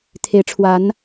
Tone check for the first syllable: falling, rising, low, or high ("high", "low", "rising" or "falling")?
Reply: rising